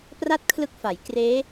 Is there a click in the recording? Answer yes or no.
no